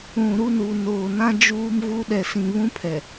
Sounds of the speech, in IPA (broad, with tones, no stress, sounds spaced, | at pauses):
ũ˨ ɾ u˦˨ n u˨ n oː˨ n ã˦ d͡ʒ uː˦ m ɣ u˦ ɗ ɛ˨ s ĩ˨ β ũ˦ pʰ ɛ˨